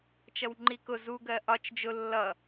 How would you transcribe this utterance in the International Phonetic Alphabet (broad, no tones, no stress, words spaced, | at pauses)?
t͡ʃʌwŋ͡ǃikʊ zuɡɜ ʔɒt͡ʃ d͡ʒʊ lːʌ